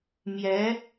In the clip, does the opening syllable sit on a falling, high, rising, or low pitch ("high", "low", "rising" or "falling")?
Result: rising